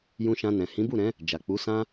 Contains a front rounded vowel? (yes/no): no